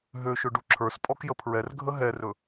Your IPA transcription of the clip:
ɦøʃɵ ɖuǁʰə˞spʼɔkjə pʰɹɛrɡʱə ɦɛrɵ

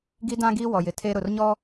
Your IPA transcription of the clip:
ɡi˦dã˦ɡi˦ wɔ˨jɪ˨tʰe˦ ɾʊ˨rɲɔ˦

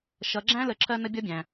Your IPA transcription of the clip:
ʃʌ˩˧ɡ͡ǁæ̃˥ lə˩˧ǁʰɜ˧ nə˥bʲʌ˥bʲæ̃˩

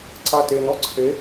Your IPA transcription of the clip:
ǀaten ɔǀʰe

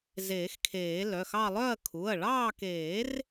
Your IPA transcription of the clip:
zeː˨˩˦xkʰeː˨˩˦ lœ˩˧˩xɑ˦˨ lˠœ˦˨ɐ̯kʰu˩˧˩ɐ̯ɭɑː˦˨keː˨˩˦r

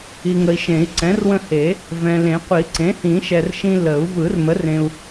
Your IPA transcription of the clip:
i˨ŋə˨i̯ʃẽ˨˩˦i̯ ǀɛ̃˩˥rwə̃˦he˨˩˦ | vɛ̃˨lẽ˨˩˦ qʷi˨˩˦ǀẽ˩˥hĩ˨˩˦ ʃɛ˨r ʃĩ˦ lə˨˩˦u̯ vɯ˨˩˦rmə˩˥r ẽ˨u̯

